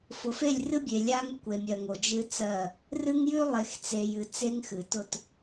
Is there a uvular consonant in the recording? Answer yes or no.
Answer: no